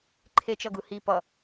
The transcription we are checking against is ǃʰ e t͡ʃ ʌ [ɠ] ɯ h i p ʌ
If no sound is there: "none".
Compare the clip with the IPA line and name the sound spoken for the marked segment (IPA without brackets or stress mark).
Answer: ɡ